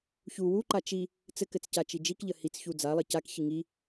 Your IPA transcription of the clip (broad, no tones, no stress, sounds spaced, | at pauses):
ç u w u ǃ a t͡ʃ i | t͡s ɘ k ɘ t͡s c a t͡ʃ i d͡ʒ i k ʎ ə h i t͡s ç u d͡z a lˠ ɘ c a k ç i ŋ i